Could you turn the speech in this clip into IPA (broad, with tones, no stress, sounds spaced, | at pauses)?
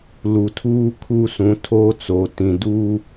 l u˨ tʰ uː˦ kʰ u˦ s ũ˨˦ tʰ oː˦ t͡s oː˨ t ĩ˨ d uː˦